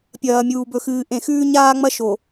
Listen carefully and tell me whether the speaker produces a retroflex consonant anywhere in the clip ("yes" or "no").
no